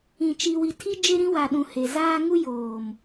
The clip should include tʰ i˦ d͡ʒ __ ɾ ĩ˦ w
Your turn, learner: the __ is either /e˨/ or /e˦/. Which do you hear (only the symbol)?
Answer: e˦